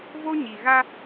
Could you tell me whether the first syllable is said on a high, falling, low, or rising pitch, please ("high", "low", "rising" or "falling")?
high